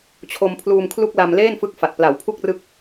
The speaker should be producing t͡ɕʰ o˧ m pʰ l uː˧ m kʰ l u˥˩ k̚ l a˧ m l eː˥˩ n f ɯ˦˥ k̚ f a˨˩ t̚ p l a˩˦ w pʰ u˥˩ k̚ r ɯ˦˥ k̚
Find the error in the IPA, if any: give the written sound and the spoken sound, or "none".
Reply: none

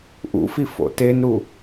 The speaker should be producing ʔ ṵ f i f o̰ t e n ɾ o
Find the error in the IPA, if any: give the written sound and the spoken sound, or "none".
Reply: o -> u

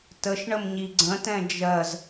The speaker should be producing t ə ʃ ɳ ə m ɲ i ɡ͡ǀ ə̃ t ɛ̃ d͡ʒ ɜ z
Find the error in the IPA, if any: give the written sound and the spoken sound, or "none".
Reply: none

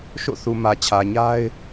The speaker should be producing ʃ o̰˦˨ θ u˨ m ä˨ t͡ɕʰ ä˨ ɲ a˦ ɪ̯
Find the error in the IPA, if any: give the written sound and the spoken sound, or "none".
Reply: none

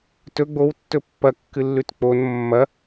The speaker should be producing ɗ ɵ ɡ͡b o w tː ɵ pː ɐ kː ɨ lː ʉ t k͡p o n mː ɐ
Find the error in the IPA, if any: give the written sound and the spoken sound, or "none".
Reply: ɗ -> t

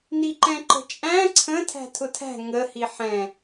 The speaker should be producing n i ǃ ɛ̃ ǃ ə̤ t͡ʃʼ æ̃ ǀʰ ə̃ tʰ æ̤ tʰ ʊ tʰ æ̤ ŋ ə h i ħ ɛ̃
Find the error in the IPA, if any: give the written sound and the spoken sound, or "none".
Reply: none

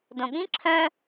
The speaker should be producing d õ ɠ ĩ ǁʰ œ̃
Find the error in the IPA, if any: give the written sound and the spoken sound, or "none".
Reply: none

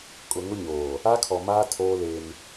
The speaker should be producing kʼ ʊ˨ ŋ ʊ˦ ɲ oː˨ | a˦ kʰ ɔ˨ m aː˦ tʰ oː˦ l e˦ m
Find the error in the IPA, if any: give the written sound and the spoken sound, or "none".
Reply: none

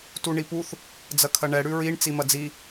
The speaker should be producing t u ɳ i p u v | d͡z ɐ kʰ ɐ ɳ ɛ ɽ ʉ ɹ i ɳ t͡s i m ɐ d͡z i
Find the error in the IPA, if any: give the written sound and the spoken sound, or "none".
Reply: v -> θ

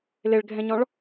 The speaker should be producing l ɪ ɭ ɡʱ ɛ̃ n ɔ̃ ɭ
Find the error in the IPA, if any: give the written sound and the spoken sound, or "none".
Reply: n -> ɲ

